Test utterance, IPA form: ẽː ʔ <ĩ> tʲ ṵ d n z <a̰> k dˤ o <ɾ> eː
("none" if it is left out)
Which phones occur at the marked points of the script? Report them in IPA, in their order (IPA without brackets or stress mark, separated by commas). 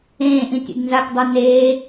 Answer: ĩ, a, n